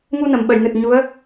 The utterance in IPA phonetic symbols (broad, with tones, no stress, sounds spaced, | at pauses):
ŋ u˧ n ə˨˩˨ m ɓ ə˨˩˨ j n ɨ˨˩ t̚ ɲ u˧˥ ə̯